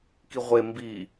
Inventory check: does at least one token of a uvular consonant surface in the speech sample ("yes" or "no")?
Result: yes